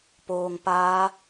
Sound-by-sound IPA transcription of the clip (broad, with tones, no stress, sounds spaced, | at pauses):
p oː˧ ŋ p aː˦˥